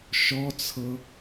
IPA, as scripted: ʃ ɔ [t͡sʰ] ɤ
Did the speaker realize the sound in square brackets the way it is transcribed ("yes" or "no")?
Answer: yes